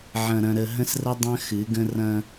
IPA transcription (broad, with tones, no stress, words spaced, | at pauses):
ʕɐ̃˨ɾɐ̃˨ ɾə˨ɦə̃˦srə˦ dˤɐ̃˦xɨ˨˦ɡə̃˦ rɐ̃˦